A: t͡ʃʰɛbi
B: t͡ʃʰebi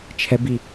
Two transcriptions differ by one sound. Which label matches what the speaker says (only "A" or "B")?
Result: A